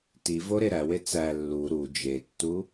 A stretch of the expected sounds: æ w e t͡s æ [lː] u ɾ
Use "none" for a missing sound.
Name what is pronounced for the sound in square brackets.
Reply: lː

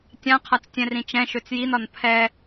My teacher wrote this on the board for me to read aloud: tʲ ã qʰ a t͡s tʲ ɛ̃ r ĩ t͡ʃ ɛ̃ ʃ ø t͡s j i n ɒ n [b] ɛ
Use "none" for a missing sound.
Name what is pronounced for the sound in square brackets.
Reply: pʰ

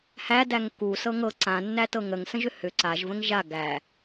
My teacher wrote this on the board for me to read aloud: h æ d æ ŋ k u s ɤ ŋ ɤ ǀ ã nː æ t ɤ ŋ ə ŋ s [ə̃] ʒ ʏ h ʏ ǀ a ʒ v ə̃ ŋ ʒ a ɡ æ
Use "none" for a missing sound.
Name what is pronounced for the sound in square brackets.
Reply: ə̃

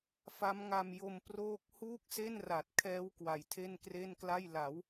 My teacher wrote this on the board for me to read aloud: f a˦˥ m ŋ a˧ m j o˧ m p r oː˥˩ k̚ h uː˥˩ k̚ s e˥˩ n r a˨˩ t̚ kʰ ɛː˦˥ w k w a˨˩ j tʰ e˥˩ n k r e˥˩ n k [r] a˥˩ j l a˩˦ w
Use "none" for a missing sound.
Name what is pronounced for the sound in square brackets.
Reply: l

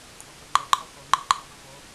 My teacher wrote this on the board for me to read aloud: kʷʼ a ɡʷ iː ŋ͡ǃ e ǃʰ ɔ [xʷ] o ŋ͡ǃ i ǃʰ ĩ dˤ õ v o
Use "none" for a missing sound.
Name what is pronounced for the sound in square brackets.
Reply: x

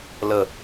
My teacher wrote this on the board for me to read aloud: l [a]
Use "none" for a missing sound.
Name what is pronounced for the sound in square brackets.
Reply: ə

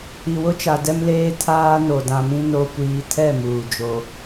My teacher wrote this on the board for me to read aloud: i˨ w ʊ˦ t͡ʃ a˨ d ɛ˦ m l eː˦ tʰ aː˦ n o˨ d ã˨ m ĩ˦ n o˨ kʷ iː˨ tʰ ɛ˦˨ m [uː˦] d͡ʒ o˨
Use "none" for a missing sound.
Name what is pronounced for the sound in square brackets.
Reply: uː˨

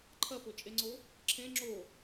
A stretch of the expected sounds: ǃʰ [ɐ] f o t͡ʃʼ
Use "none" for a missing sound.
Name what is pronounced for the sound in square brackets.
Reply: ɐ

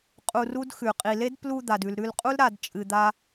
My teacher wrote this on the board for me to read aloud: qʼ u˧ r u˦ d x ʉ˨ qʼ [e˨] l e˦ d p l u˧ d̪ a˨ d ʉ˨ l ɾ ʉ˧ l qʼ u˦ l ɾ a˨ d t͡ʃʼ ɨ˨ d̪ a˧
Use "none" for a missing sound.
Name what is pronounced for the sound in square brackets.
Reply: i˨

